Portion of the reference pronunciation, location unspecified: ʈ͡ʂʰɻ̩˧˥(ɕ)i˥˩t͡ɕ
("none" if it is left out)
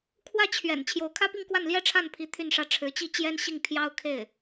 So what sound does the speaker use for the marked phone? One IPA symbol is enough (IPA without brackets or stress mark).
t͡ɕ